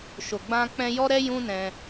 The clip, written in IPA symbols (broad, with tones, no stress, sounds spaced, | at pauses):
ʃ o˨ ɡ͡b ã˧ k͡p ɛ̃˧ j ɔ˦ ɾ ɛ˦ j ũ˦ n ɛ̃˧